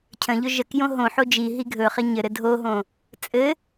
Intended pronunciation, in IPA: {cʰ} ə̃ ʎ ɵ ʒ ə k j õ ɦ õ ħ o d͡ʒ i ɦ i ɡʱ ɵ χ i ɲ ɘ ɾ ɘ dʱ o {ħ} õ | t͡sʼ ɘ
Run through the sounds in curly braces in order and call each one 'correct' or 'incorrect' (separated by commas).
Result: correct, incorrect